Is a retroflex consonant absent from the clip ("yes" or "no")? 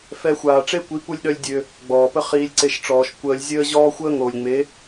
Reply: no